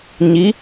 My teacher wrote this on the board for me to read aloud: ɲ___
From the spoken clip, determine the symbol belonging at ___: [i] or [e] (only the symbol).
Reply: i